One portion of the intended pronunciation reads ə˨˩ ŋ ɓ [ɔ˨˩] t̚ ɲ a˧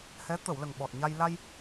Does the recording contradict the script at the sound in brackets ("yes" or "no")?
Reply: no